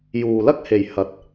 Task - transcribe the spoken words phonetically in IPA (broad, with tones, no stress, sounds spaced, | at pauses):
j uː˨ l ɐ˥ k̚ h e˨ j h ɐ˨˥ t̚